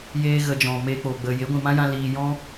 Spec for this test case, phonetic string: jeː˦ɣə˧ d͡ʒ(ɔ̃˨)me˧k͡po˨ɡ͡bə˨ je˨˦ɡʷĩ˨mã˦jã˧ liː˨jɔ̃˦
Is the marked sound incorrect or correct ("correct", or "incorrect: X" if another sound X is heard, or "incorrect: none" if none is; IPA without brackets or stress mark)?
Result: correct